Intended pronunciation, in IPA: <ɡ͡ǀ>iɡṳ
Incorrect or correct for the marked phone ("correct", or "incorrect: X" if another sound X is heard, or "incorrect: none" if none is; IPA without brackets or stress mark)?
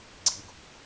correct